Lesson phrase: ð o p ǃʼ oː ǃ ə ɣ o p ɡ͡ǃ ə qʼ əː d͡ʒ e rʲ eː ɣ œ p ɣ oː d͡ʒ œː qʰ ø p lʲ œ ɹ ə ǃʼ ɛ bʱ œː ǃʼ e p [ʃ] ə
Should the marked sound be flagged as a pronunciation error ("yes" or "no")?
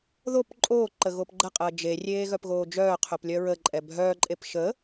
no